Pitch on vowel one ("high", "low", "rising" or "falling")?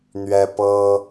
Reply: high